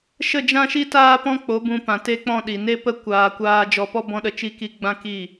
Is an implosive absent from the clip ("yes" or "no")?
no